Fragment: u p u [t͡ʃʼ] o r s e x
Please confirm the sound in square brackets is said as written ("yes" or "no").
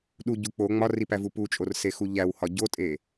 yes